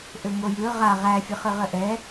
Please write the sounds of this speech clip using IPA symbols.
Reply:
ʔ ø ŋ o j ɯ ʁ a ʁ æ fʲ ɯ χ ɯ ʁ ə ʔ ɛ

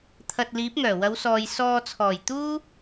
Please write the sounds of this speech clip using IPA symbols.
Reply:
t̪ʰ ɐ˨ t̚ l iː˨˥ p̚ ŋ œː˨˩ w ɐ˨˧ w s ɔː˨ j s ɔː˧ t͡sʰ ɔː˨˩ j t̪ uː˥

